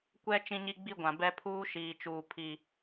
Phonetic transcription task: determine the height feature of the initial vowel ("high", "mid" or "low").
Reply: mid